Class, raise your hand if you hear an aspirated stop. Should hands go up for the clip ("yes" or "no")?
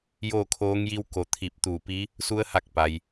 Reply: yes